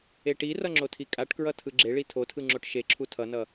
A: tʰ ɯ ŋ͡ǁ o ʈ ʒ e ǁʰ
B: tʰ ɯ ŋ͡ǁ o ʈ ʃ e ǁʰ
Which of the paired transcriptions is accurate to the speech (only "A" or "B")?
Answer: B